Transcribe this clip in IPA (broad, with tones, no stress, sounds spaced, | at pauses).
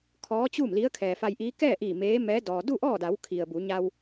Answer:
kʰ ɔː˧˥ t͡ɕ uː˥˨ m l i˧˥ ə̯ kʰ ɛː˩ f a˧ j ʔ iː˧˥ k ɛː˥˨ ʔ iː˧˩ m eː˧˥ m ɛː˧˥ d ɔː˩ d u˥˨ ʔ ɔː˥˨ d a˩˧ w kʰ i˩ ə̯ b u˩˧ ɲ a˧ w